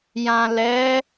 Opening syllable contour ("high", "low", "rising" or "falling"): low